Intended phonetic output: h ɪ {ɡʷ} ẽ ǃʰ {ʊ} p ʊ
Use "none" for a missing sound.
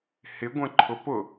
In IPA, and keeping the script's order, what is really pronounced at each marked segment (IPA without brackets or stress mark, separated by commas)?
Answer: ɡʷ, ʊ